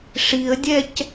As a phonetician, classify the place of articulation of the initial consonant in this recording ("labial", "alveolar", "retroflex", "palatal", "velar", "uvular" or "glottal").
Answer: retroflex